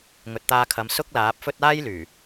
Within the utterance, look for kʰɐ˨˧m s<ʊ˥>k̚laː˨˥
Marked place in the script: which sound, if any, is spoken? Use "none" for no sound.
ʊ˥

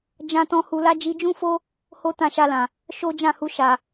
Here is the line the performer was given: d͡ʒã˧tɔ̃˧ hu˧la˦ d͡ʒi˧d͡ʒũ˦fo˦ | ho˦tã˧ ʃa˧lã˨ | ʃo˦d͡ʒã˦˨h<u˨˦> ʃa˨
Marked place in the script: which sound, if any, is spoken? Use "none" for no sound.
u˧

